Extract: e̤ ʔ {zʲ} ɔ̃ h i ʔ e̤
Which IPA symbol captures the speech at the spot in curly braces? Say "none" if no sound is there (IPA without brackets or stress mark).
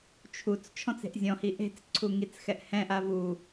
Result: zʲ